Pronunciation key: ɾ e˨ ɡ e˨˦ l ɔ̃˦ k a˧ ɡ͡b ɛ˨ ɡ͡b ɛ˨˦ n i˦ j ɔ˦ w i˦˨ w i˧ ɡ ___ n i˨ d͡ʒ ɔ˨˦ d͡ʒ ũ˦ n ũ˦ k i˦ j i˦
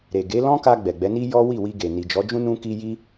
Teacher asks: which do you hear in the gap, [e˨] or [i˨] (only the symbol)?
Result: e˨